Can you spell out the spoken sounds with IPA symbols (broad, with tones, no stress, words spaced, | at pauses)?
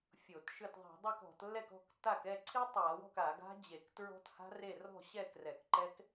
fʲo˧˩˧tʃʏ˥˩t ðˤɛ̤˧˩˧dˤa˥˩k ɔ̤˧˩˧tlːɛ˥˩kɔ̤˥˩ktːa˥˩k ɛ˥˩ǀʰi˦˥tˤa˧˩˧wɔ̤˥˩k a˧˩˧ɡa̤˦˥ d͡ʑe˧˩˧k tɹɔ̤˦˥tha̤˦˥re˥˩ rɔ̤˥˩ɕɛ˥˩ krɛ˧˩˧kǃɛ˦˥k